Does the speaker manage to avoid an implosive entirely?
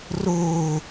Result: yes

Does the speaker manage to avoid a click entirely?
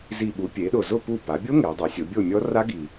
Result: yes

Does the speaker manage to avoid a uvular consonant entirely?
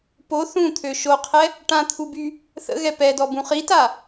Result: no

